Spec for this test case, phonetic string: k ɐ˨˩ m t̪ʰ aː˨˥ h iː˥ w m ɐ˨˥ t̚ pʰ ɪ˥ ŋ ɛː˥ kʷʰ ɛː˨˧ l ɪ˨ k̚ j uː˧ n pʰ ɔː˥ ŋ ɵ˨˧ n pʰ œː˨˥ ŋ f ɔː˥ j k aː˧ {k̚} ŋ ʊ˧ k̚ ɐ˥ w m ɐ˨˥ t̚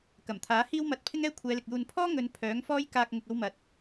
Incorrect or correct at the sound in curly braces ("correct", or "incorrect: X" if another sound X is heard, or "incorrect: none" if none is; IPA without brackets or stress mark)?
correct